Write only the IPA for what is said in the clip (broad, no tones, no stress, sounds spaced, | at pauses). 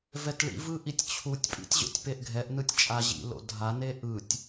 v ɛ t ɭ ḭ v ɯ ʔ i tʲ t͡ɕʰ u tʲ pʼ ḭ tʲ ʑ o̰ tʲ p e ʔ ɡʱ ɛ ʔ n ɯ tʲ t͡ʃʼ a ʑ ḭ l o̰ dʱ a n e ʔ ɯ tʲ